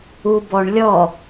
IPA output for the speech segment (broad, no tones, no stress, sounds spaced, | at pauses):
u b ɔ ɳ lʲ ɔ